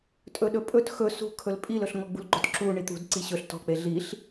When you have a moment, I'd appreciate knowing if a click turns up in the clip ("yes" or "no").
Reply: yes